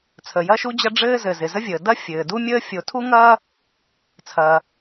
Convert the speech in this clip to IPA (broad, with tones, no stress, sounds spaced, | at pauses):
t͡sʰ ə˩ j ɐ˥ ʃ u˥ d͡ʑ ɐ˥ ɖ͡ʐ ɘː˥ z ɘ˩ z ɪ˩ z ə˥ vʲ əː˩ d ɐ˥ fʲ ɘː˩ d u˥ mʲ əː˥ fʲ o˩ tʰ u˥ ŋ ɐː˥ | t͡sʰ ɐː˩